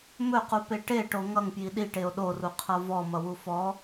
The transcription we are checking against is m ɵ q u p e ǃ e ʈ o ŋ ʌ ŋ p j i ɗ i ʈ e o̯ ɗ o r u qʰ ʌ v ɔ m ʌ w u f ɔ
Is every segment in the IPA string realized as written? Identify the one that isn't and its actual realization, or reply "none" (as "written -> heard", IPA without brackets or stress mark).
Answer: ǃ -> ʈ